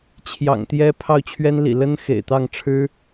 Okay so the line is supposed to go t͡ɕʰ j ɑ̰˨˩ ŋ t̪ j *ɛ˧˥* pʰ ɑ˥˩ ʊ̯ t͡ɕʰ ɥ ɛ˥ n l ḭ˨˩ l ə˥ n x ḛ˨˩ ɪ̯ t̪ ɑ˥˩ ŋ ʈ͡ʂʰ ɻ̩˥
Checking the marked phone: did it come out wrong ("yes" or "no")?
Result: yes